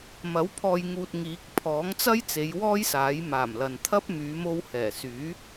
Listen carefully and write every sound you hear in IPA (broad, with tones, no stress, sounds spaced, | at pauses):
m ɐ˨˥ w pʰ ɔː˨ j ŋ uː˨ t̚ ŋ iː˨˥ k̚ pʰ ɔː˨˥ ŋ t͡s ɐ˥ j t͡s e˨˧ j w ɔː˥ j s aː˨˥ j m aː˨˩ m l ɐ˨ n t̪ʰ ɐ˥ p̚ m yː˨˧ m o˧ w h ɛː˨˩ s yː˨˥